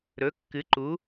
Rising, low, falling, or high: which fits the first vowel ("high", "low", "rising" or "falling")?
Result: rising